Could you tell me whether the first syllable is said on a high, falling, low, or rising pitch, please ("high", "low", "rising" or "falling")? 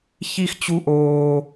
high